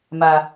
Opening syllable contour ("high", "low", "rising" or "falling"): low